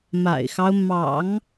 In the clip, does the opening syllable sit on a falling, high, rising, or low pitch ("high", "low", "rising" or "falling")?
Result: low